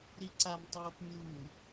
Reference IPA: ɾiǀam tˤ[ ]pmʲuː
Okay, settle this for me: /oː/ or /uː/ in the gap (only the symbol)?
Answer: oː